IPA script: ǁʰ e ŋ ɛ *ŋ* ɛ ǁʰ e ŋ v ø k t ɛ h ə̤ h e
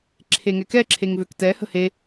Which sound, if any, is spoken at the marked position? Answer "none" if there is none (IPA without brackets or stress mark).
k